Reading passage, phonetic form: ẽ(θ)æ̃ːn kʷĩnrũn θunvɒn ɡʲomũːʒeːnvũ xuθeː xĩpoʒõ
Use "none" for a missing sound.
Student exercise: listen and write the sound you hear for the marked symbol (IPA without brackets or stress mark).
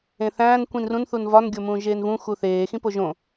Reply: θ